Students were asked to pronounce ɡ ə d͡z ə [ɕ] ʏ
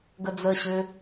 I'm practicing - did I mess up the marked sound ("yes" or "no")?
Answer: no